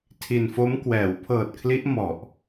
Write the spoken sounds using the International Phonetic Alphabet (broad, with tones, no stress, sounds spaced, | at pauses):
tʰ i˧ n f o˦˥ m k w ɛː˩˦ w pʰ ɤː˨˩ t̚ kʰ l i˦˥ ʔ m ɔ˨˩ ʔ